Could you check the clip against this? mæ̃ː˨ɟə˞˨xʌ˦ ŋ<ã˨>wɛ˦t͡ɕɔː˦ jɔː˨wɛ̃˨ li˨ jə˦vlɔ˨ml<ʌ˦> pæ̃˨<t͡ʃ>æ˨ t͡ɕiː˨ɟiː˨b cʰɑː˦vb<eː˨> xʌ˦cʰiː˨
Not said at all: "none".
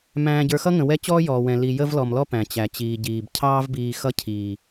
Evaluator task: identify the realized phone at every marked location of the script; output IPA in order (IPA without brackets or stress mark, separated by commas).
ə̃˨, ɔ˦, t͡ɕ, iː˨